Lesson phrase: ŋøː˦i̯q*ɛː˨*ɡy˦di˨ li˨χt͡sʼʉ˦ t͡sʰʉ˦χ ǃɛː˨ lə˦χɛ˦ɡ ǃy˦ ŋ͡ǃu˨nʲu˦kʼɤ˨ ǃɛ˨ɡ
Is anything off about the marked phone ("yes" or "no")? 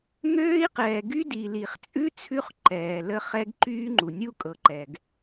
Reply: no